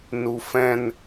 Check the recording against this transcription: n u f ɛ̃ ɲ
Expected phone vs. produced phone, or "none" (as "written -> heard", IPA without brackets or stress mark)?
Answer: ɲ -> n